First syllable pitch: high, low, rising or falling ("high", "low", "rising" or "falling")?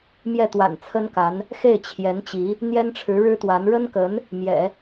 falling